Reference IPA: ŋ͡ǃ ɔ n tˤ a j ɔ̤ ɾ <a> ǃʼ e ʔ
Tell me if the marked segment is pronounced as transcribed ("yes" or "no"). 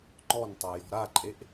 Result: yes